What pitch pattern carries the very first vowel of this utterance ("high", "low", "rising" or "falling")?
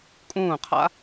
falling